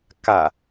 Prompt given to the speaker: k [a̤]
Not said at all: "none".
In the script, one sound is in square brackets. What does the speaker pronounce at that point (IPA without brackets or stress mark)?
a